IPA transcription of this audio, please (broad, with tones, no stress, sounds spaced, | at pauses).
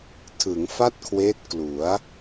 tʰ ɯ˩˦ ŋ f a˥˩ t̚ kʰ w eː˦˥ t̚ k l u˩˦ a̯